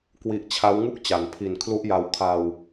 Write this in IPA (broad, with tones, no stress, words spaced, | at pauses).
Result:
kwi˦˥ʔ t͡ɕʰa˦˥wŋu˥˩k̚t͡ɕa˩˦n pʰi˨˩nkʰlu˦˥ʔja˧w kʰa˧w